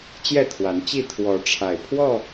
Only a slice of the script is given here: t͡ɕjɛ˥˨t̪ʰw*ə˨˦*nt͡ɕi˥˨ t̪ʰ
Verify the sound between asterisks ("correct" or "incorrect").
incorrect